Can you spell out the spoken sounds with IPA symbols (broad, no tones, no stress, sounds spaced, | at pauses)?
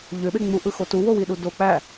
ʎ ø ɓ e ŋ͡m u ʔ ɯ x o t u w o w i ɗ u d o k͡p æ